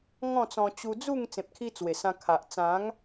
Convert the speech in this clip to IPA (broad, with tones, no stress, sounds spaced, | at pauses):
ŋ ɔ̃˥˧ t͡s ɔ̃˧ t͡ɕ u˧ d͡z u˥˧ ŋ t͡s ẽ˨ p̚ kʰ i˧ t͡s w e˨˩ s ã˧ kʰ a˨ ʔ t͡s ã˨˦ ŋ